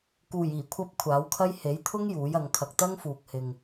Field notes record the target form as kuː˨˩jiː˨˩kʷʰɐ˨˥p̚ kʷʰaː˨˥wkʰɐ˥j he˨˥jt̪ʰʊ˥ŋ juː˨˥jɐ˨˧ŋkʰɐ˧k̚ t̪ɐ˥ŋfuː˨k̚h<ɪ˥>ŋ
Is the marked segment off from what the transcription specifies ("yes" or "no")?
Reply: yes